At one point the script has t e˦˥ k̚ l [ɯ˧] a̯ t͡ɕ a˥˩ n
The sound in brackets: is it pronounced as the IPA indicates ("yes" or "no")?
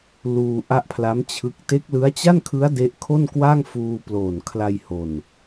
no